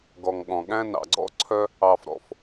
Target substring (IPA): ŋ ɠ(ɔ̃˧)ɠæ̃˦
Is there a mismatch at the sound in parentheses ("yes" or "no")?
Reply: yes